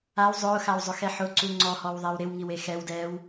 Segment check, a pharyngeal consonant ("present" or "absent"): present